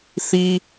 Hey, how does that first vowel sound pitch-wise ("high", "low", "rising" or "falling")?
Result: high